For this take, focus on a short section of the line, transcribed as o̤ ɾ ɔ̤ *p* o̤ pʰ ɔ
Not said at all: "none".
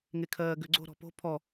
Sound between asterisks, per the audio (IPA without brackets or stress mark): p